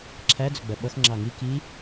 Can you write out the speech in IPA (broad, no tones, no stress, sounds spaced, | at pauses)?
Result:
ǁʰ æ d͡z ʊ ɡ͡b ɜ ɓ ʌ x ŋ͡ǁ ɑ ŋ i k i